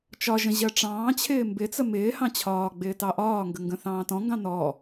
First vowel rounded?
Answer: yes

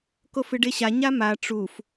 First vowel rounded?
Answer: yes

